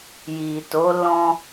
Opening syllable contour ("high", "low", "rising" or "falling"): low